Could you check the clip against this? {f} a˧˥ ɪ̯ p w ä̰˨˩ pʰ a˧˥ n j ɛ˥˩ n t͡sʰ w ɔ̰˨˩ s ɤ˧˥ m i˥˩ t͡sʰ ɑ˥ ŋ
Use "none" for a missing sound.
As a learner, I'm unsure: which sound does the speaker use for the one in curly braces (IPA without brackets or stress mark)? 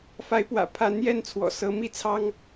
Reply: f